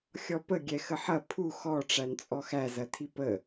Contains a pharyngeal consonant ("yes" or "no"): yes